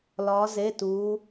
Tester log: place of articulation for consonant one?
alveolar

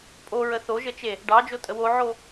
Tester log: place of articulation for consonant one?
labial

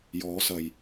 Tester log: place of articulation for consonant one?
palatal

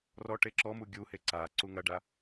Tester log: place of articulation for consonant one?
alveolar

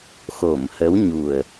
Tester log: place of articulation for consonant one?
velar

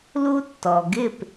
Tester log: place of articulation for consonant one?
alveolar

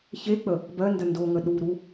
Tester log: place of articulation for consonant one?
palatal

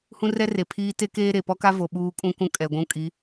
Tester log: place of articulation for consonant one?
glottal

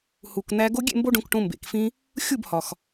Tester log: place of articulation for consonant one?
glottal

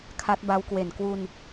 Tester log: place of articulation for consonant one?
velar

